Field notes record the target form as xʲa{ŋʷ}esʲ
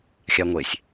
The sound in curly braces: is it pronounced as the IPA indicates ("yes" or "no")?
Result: yes